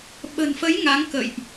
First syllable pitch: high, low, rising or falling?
low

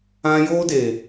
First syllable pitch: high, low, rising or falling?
high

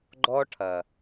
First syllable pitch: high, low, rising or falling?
high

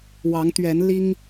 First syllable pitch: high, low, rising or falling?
rising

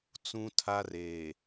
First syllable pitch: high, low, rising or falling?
high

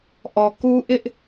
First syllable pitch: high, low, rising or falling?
low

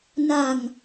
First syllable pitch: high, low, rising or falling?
low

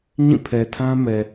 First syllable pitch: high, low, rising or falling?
falling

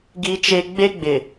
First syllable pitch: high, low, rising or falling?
high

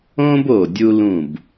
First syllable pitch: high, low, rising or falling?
high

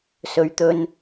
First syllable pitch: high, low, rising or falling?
low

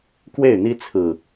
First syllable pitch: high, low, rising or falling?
falling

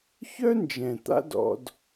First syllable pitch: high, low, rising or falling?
high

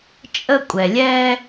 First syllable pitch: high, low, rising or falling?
high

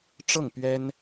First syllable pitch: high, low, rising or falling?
falling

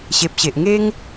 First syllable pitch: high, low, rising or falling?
low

